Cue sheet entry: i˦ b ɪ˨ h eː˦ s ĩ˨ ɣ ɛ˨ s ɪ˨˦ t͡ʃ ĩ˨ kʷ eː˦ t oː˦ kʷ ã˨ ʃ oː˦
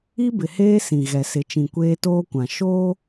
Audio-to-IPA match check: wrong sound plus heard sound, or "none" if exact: none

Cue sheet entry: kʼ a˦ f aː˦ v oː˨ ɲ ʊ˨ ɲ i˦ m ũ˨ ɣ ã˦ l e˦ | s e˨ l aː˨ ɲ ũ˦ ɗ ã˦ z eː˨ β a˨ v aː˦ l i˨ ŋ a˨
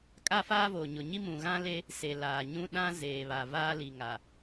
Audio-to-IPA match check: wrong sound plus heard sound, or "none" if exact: none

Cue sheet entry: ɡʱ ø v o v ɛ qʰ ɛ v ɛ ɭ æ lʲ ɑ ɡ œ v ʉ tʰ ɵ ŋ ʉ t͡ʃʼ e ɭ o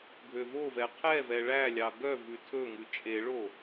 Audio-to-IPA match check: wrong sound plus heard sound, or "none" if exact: none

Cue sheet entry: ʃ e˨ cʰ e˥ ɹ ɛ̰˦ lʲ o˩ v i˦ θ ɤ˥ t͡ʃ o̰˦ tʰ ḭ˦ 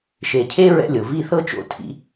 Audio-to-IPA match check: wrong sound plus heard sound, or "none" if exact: none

